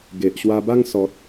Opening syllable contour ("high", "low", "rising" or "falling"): low